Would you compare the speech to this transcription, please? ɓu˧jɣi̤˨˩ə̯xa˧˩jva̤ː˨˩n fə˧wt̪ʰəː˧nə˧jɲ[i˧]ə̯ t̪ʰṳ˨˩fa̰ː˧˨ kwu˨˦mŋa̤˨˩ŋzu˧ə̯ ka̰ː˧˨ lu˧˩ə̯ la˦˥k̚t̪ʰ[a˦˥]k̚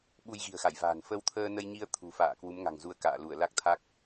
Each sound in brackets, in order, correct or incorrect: correct, correct

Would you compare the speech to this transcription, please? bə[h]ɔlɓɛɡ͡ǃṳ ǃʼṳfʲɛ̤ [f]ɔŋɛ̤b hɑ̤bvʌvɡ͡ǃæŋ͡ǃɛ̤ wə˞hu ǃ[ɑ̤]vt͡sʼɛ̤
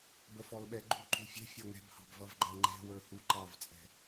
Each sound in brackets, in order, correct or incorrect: incorrect, incorrect, incorrect

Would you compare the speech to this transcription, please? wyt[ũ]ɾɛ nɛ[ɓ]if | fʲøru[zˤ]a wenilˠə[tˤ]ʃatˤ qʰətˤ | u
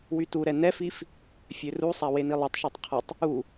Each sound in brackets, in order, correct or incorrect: incorrect, incorrect, incorrect, correct

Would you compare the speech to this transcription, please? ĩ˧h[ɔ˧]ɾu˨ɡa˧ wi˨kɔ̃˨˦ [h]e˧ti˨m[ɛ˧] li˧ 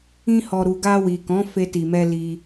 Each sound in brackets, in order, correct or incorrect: incorrect, incorrect, correct

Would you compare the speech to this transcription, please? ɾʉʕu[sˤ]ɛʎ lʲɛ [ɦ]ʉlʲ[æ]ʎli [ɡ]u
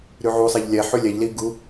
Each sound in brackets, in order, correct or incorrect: correct, incorrect, incorrect, correct

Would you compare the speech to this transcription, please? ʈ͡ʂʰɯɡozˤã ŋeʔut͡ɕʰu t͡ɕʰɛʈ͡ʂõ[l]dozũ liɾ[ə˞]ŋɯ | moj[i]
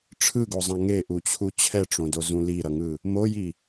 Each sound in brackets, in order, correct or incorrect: incorrect, incorrect, correct

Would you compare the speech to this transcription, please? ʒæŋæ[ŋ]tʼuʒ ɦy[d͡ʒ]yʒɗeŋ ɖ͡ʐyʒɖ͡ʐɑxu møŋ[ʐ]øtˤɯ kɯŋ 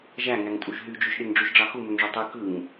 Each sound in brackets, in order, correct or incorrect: correct, correct, correct

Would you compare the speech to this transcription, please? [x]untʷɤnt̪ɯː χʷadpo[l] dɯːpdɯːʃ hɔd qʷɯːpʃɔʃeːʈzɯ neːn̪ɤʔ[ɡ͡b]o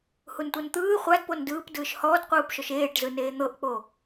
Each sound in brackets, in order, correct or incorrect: incorrect, incorrect, incorrect

